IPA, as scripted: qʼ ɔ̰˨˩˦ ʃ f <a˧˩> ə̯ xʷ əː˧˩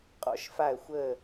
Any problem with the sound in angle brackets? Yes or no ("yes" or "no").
no